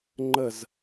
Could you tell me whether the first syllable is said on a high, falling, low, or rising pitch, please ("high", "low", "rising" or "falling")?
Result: falling